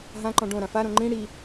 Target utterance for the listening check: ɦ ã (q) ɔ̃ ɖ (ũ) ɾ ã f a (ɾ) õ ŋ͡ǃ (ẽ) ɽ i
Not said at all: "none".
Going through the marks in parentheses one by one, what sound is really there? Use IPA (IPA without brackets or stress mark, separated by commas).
ǃ, õ, ɾ, ĩ